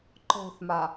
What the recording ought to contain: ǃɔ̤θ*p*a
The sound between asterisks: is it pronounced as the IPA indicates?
no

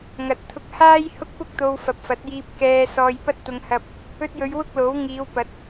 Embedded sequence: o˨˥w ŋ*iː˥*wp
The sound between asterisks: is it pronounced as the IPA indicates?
no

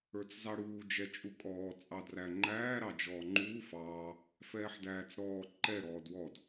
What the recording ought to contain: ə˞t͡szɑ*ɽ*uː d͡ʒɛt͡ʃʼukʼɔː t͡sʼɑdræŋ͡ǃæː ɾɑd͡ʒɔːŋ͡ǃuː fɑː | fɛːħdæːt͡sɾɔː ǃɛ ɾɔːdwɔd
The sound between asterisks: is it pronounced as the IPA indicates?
yes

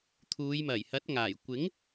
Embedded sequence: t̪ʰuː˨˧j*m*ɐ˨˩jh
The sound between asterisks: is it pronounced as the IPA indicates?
yes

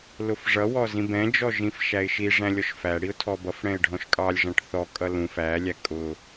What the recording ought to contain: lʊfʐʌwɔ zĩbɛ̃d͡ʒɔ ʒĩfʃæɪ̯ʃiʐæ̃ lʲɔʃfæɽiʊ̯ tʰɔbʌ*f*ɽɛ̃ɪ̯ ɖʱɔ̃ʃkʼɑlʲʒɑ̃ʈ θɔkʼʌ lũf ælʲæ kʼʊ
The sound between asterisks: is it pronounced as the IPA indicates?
yes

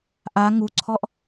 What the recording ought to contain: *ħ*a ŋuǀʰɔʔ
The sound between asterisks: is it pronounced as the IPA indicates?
no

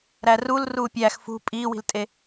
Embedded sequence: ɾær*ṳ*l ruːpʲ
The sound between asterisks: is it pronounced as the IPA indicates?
no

